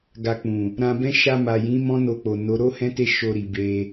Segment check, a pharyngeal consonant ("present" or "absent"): absent